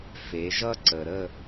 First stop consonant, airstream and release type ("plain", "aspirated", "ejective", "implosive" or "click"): click